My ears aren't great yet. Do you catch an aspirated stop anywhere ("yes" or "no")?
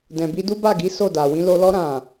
no